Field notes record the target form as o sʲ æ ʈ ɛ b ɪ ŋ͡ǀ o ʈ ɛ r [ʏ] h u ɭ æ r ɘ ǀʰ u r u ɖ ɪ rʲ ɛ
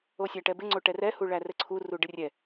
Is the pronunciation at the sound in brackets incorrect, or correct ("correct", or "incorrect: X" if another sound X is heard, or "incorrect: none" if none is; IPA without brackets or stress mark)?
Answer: incorrect: ɛ